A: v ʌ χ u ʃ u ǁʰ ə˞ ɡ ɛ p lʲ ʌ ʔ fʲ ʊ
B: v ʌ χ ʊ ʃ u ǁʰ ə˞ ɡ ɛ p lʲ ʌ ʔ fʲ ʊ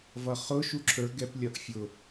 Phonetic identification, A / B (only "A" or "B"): B